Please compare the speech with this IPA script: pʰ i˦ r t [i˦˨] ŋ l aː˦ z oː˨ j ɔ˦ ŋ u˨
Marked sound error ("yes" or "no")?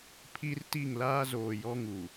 no